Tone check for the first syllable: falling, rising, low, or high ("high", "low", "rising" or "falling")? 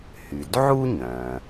low